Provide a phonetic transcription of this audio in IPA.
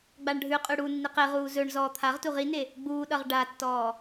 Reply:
ɡ͡b a ɳ ɖʱ ʉ qʼ ʉ ɽ u nː i q e ʁ uː z ɵ ɳ z ɔː t̪ʰ a ʁ t u ʁ i n e | ɡ͡b uː ɗ ʌ ʁ ɖ a tː ɔː

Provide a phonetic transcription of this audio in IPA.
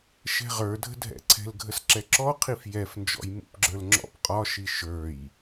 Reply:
ʃ ɛ̤ ʁ ə˞ dʱ ə̤ dʱ ɛ̰ ǀʰ ɛ̤ l ɡʱ ə s ǁ ɛ ǁ ɔ qʰ i f j ɛ f n d͡ʒ ɔ̰ j m ṵ p ɡ͡ǁ ə˞ l ŋ͡ǁ ɔ̰ p qʼ ɒ ʃ i ʃ ə˞ j

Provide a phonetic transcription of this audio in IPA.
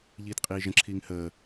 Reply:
ʎ iː t qʼ iː ʒ ə̃ ǁʰ iː ŋ h əː

